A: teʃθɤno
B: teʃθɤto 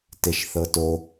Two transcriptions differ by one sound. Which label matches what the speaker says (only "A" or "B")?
B